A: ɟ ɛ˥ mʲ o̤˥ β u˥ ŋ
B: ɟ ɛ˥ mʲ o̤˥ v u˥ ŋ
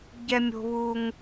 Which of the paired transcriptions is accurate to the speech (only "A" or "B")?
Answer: A